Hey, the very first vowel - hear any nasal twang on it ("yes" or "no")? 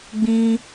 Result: yes